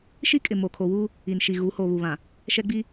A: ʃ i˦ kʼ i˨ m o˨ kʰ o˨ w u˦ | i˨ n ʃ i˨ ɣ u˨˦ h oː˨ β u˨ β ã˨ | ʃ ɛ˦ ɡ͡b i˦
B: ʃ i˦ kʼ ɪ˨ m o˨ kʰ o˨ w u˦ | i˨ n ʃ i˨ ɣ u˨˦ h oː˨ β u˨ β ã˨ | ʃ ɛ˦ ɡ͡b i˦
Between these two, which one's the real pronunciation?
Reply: B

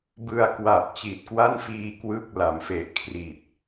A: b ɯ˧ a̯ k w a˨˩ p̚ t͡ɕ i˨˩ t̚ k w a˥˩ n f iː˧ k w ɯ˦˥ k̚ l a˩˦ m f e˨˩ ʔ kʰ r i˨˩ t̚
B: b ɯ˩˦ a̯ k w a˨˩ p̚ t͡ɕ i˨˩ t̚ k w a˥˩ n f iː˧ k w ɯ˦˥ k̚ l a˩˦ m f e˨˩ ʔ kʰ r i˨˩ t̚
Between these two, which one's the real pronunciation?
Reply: A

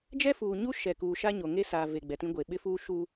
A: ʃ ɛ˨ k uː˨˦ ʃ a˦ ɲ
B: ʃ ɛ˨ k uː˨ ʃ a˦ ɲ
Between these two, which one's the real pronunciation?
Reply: B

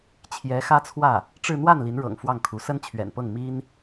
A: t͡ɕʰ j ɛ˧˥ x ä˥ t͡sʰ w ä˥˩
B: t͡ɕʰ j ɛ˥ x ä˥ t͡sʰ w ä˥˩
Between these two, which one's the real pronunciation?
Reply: A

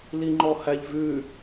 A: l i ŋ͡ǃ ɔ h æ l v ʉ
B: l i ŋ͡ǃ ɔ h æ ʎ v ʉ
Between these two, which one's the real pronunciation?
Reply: B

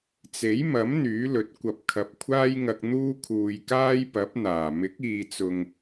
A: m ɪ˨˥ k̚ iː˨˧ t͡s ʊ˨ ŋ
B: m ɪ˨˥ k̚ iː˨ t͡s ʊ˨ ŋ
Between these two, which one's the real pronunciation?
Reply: B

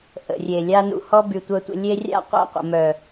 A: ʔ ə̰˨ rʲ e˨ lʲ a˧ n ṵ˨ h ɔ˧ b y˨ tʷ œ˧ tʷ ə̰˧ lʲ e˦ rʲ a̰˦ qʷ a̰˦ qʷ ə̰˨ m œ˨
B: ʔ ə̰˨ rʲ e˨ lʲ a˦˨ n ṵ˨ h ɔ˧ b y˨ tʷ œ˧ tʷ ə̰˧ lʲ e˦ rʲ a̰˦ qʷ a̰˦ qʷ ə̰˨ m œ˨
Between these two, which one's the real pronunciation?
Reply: A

